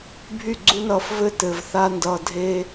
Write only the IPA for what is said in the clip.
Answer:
bʱ y˦˨ ɡ͡ǀ u˦ n ʌː˧ f v ɘ˦ t ɘ˨ v θ a˧ n d ʌː˨ dʱ e˦

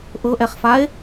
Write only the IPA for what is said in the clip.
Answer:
ʔ ɤ ʔ ɛ χ f a e̯

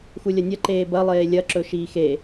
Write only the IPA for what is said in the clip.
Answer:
x u lʲ ɐ nʲ ɐ ǃ eː b ɐ lˠ eː lʲ ɐ ǁ ɵ ʃ iː x e

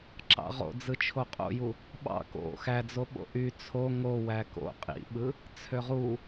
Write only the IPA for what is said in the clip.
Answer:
ǁ ɑ̰ ʁ o̰ d͡z ɯ t͡ʃʰ o qʼ o̰ j u | ɓ ɑ̰ k o̰ x æ d͡z o ɓ o̰ ʔ y t͡sʰ o ŋ o w æ k o̰ qʼ ḭ ɓ ɯ | t͡sʰ ø ʁ u

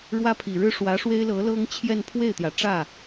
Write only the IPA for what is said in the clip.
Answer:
ɻ w ä˥ pʰ i˨˩ ɻ ɻ̩˥ ʂ w ä˧˥ ʂ w e˥ ɪ̯ l ɤ˧˥ l ɤ˥ ŋ t͡ɕʰ j ɛ˥˧ n pʰ w e˥˩ ɪ̯ t̪ j ä˩ ʈ͡ʂ ä˥˩

